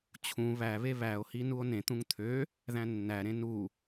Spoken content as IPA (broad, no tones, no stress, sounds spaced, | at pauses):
t͡ɕʰ ũ β æ β e β æ o̯ h i n u o̯ n ẽ t̪ ũ ŋ t̪ʰ ø | ð æ̃ nː æ ɾ ẽ n u